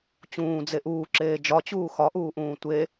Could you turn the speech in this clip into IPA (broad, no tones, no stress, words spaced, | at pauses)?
t͡ɕũːd͡ze ʔuːǁeː d͡ʒɒt͡ɕuː xɒʔuːʔũː tʷe